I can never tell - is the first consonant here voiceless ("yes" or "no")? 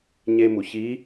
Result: no